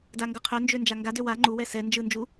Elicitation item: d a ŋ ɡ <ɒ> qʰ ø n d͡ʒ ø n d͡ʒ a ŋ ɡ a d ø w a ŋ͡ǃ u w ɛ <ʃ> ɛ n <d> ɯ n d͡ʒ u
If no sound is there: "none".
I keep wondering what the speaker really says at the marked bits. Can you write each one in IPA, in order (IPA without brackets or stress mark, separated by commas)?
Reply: ʌ, s, d͡ʒ